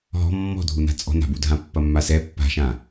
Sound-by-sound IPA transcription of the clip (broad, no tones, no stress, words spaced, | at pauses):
ɦɔ̤ mːɔ̤dʱuna̤ t͡sʼɔ̤na̤budʱã pːɐmːasɛ pːa̤ʃã